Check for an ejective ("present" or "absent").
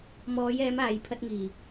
absent